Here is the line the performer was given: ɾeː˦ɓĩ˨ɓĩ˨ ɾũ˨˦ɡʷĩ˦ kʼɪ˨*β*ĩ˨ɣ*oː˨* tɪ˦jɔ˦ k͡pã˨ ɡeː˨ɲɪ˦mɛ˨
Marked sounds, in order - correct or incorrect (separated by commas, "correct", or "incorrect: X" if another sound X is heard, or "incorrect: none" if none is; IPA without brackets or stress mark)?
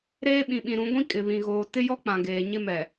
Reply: correct, correct